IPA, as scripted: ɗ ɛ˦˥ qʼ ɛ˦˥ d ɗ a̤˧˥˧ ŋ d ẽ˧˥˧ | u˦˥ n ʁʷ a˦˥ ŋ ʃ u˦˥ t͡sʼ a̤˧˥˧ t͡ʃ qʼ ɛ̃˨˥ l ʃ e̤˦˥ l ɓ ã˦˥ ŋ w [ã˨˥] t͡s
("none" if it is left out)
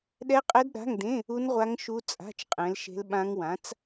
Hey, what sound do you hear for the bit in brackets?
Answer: ã˨˥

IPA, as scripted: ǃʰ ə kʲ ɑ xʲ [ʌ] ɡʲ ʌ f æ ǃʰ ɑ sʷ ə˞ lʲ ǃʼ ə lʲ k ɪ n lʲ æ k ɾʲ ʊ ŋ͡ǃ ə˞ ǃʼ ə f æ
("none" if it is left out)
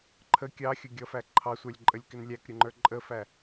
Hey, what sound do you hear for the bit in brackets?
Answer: ʌ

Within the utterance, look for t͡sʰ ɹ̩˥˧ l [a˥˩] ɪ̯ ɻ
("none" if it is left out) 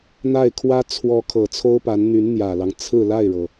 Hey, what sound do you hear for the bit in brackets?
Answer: a˥˩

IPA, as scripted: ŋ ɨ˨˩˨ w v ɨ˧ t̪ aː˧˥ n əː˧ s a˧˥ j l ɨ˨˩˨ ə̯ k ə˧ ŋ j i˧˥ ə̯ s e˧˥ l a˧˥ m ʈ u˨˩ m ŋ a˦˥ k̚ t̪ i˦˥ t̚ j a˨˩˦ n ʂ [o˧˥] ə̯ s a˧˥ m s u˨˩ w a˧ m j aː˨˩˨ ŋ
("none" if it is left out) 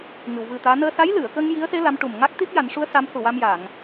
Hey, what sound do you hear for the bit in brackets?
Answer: u˧˥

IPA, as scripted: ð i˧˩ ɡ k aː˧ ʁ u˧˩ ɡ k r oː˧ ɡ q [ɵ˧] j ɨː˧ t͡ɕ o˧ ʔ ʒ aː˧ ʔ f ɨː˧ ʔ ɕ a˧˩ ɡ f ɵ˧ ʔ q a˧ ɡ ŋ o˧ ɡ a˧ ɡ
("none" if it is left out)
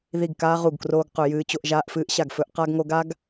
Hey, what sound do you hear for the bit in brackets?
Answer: ɵ˧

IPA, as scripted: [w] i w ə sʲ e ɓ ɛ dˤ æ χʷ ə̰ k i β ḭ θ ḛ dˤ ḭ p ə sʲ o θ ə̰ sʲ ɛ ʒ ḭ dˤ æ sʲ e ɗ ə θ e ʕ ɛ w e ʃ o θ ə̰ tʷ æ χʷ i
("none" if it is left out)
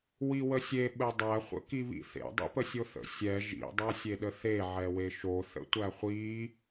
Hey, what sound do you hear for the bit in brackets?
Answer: w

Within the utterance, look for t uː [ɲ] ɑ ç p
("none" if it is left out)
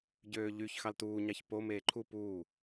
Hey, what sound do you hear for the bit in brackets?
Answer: ɲ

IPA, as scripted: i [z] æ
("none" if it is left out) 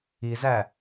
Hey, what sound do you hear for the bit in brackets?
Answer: z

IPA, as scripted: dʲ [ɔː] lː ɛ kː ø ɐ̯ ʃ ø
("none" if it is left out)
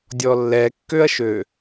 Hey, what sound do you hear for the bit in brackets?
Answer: ɔ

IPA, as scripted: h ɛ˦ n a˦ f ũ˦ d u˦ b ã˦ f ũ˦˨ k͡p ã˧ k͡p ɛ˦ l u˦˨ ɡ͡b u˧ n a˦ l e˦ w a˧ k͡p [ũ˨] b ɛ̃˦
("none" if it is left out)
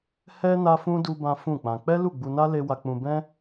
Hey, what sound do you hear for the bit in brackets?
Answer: ũ˧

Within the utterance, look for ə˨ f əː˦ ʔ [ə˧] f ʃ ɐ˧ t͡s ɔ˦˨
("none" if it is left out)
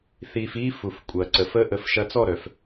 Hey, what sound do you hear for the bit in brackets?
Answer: ə˧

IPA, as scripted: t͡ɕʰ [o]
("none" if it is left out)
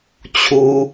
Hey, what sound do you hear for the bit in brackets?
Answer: u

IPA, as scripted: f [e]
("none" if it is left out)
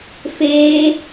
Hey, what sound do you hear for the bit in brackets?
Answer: eː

